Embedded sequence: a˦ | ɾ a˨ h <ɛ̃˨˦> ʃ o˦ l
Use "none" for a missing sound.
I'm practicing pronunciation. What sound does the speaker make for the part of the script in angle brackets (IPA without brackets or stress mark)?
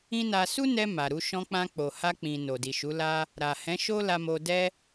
ɛ̃˨˦